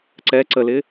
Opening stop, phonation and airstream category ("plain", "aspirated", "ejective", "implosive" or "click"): click